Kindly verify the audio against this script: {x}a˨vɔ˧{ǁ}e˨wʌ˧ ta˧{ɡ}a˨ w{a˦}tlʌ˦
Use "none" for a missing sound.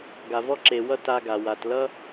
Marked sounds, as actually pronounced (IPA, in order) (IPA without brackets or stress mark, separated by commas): ɡ, ǁ, ɡ, a˨